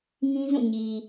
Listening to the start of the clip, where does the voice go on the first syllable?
high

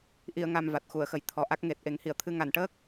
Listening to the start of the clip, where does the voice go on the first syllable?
low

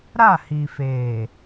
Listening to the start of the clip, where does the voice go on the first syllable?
falling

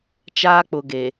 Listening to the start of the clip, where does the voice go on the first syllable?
high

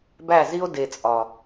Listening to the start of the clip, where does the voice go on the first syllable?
falling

